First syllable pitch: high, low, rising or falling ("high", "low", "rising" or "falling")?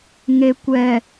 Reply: low